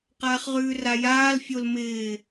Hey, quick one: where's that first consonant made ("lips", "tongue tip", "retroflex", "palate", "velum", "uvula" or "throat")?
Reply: uvula